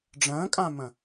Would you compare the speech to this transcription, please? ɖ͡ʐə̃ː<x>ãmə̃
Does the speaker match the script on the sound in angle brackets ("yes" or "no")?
no